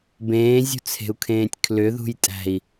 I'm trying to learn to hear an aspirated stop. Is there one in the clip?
yes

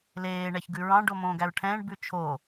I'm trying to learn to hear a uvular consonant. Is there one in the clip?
no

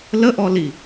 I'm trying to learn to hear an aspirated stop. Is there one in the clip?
no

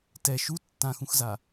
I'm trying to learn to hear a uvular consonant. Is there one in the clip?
no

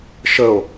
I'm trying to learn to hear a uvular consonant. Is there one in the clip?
no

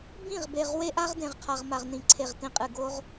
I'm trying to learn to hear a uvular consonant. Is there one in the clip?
yes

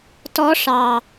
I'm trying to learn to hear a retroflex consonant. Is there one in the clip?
yes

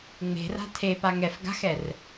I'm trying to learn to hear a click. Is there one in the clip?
no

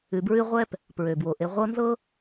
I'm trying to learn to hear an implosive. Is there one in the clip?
no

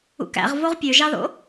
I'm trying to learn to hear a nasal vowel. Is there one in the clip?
no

